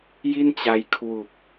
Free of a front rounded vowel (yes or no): yes